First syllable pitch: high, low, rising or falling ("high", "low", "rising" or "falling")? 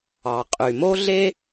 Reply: low